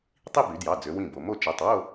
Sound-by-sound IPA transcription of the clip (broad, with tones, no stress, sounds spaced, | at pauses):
tˤ i˥˧ b y˩˧ d j ɑ˩˧˩ d͡z ø˩˧ w ĩ˥˩ b o˩˧ m o˥˩ t͡ʃ ɛ˩˧˩ tˤ w o˥˧